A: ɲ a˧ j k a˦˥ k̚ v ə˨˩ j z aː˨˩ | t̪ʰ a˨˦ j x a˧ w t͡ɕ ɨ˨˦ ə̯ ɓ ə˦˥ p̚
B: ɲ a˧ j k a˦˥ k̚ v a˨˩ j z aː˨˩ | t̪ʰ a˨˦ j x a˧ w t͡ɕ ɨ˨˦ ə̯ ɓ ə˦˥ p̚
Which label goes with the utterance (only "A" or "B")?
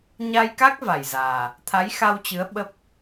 B